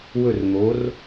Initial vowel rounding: rounded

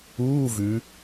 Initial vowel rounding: rounded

